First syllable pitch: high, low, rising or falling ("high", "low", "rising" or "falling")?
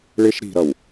high